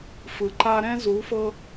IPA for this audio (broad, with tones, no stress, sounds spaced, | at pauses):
f ɯ˨ ǃ a˦ ɾ ɛ̃˦ z u˨˦ f ɤ˦